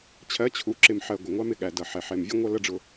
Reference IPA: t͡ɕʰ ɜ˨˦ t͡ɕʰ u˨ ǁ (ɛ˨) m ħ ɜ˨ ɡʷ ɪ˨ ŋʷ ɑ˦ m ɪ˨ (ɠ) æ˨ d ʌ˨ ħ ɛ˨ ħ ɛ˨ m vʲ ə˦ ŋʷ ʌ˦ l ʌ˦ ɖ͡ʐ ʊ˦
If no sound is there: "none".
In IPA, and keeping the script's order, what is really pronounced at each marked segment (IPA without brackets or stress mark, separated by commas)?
ɪ˨, ɠ